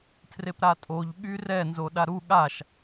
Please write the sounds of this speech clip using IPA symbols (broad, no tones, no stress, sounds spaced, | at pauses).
tʰ r e p ɾ a tʼ o ʎ ɠ y r ɛ n z o ɗ a ɾ u ɠ a ʃ